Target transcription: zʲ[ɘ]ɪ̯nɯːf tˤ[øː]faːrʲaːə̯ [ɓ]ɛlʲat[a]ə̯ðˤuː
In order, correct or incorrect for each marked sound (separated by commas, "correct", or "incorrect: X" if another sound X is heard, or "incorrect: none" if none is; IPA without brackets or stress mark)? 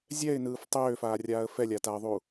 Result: incorrect: ɛ, correct, incorrect: f, correct